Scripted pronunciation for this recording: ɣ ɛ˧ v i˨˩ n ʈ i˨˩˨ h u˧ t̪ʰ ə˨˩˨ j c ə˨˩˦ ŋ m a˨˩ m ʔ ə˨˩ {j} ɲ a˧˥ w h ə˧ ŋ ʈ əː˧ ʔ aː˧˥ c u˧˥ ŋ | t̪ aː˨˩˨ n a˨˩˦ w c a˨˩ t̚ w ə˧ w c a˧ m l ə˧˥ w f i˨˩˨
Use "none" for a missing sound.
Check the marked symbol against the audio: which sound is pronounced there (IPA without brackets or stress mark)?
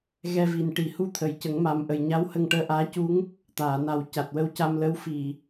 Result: j